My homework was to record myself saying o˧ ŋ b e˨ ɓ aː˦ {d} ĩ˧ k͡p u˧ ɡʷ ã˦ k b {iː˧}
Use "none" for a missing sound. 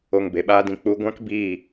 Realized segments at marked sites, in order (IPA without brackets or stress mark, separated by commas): d, iː˦˨